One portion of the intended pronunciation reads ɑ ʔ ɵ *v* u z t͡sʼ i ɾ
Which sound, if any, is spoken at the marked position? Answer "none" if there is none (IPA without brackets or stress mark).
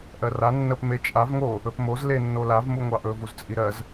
v